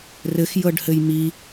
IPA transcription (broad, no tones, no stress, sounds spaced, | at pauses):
r ɘ x j ɤ ɖ h ɘ j m i